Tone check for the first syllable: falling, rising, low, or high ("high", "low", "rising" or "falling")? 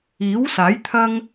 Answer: rising